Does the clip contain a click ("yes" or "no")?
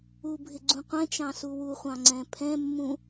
yes